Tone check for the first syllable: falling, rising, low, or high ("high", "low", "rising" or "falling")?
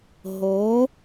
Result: rising